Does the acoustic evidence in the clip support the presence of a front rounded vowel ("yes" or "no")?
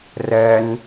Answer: no